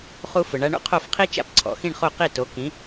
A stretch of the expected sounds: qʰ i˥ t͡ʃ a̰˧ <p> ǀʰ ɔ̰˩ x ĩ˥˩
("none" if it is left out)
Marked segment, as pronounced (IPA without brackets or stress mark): p